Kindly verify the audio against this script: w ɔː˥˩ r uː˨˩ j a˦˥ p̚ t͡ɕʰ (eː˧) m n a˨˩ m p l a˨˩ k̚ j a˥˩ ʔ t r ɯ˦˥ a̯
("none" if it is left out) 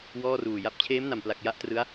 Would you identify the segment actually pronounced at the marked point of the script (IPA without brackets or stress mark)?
eː˦˥